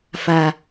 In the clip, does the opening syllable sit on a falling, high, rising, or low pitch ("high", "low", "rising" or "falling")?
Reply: low